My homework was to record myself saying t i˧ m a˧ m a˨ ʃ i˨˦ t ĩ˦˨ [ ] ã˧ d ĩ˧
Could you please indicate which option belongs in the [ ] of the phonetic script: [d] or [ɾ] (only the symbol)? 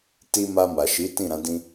ɾ